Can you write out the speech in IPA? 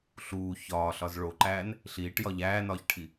ɬuː çɒːɬɒz ɭoǃæːn | ɬiːʈjɒ ʎæːnɒːçʈʰi

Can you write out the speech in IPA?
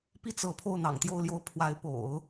pi˥˩ t͡sɤ˧˥ pʰo˥˩ʊ̯n̪ɑ̰˨˩ŋt̪jo˥˧ʊ̯ljo˥˩ʊ̯ pʰwa˧˥ɪ̯po̰˨˩˦ʊ̯

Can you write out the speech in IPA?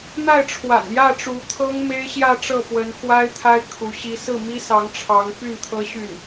n̪a˥˩ɪ̯ʈ͡ʂʰwa̰˨˩njä˥˩ ʈ͡ʂu˧˥t̪ʰɤ˥ŋ me˥ɪ̯ɕjä˥˧ʈ͡ʂɤ˥˩pwə˧˥n xwa˥ɪ̯t̪ʰa˥ɪ̯ kʰu˧˥ɕi˥ sɹ̩˥˩mi˥sɑ˧˥ŋʈ͡ʂʰɑ˧˥ŋ py˥˩nt̪ʰɤ˥ɕy˥˩n

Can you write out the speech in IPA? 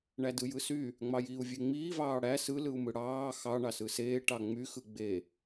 ɳædɯjɯsy | ŋ͡mɑjiːu̯vʲeŋ͡miː vɑːɽæ sɯ lɯu̯mɯɽɑː xɑ ɳɑsɯseː ʈɑŋ͡my xɯɡ͡be

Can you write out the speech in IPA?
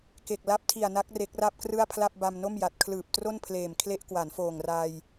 ke˨˩k̚la˦˥p̚ tʰi˨˩a̯na˦˥k̚ re˦˥k̚ra˥˩p̚krɯ˥˩a̯pʰla˥˩p̚ ba˧mno˥˩mja˨˩t̚ kʰlɯː˨˩p̚tro˥˩npʰleː˨˩m kʰle˦˥ʔkwa˩˦nfoː˨˩ŋ ra˧j

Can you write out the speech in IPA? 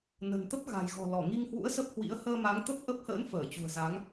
nə̤˨˩nt̪ə˦˥p̚ ɣa̤˨˩jɣɔ̤˨˩ lɔ˧˩ŋi˧ŋhwṵ˧˥ə̯ sə˦˥p̚hwḭ˧˥ə̯ həː˧ma˨˦ŋ t̪ə˦˥p̚ʔə˦˥p̚hə̰ː˧˥n fəː˧˩t͡ɕṳ˨˩ə̯za˨˦ŋ

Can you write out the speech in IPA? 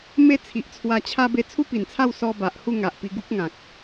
me˥˧t͡sʰi˨ʔt͡sʰwa˧t͡ɕʰa˦ be˧t͡sʰu˦pi˨˩nt͡sʰa˥˧w sɔ˧ ba˨ʔhu˥˧ ŋa˨ʔpi˧ɡu˦k̚ŋã˨k̚

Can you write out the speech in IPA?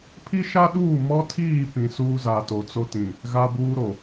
pʰi˦ʃa˦ɗuː˦˨ mɔ˦tʰiː˦˨pĩ˨ suː˦ za˨to˨t͡so˦tĩ˨ | ɣa˦buː˦ɾo˨

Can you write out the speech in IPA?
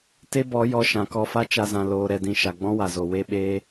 te˦bɔ˨˦jɔ˧ ʃã˨kɔ˧fa˦ t͡ʃa˧zã˨ loː˨ɾɛ˨dĩ˨ ʃa˨ɡ͡bɔ̃˦wa˨zo˨ we˦ɓeː˦

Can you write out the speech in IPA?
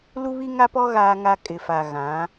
lu˦βi˦ŋa˦pɔ˦ ɣaː˦ŋa˦ kʼɪ˨fa˨ ɣã˨˦

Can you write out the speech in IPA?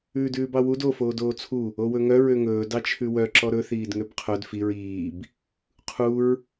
ʉːdʉːbɑwud o foːdoːt͡sʰu | owɵŋœ ɹøŋɵː dɑt͡ʃʰʉwœ ǁɔɾɵ θiːdŋøbqʰœd fiɹ iːb | qʰuɹ

